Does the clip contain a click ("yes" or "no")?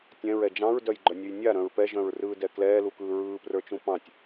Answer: yes